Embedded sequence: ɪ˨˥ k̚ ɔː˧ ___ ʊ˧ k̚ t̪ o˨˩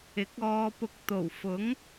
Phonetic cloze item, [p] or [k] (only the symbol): p